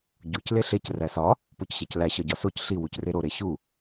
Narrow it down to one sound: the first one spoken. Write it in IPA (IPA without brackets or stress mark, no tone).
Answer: ɟ